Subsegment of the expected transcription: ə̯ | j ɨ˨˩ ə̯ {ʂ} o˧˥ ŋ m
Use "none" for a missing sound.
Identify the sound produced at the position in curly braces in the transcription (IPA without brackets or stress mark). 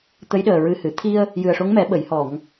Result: ʂ